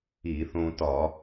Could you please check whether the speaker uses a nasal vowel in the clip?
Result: yes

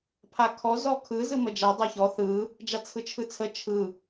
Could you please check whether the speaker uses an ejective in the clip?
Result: no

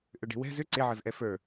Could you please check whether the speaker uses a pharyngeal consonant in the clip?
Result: yes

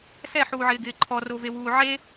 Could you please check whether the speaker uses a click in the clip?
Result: yes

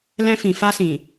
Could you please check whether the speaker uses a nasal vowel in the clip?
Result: yes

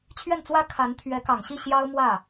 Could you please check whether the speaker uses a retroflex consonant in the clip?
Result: no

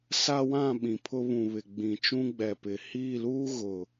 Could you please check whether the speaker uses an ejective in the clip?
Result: no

